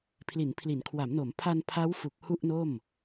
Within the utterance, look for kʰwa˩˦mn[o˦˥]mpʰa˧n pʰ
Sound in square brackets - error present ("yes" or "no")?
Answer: yes